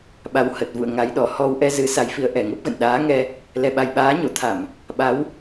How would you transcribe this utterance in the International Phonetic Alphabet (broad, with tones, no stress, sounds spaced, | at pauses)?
ɓ a˨˦ w h ə˨˩ t̚ v ṵ˧˨ ə̯ ŋ a˨˦ j ɗ ɔ˧˩ h ɔ˧ w ʔ ɛ˧ z ɨ˨˦ s a˨˦ j f i˨˦ ə̯ ʔ ɛ˨˩ ŋ ə˦˥ p̚ ɣ ə̰˧˨ n ɗ aː˨˦ ŋ ɛ˧ | l ɛ˨˩ ɓ a˨˩ j ɓ aː˨˦ ɲ o˧˩ t̪ʰ a˧˩˨ m | ɓ a˨˦ w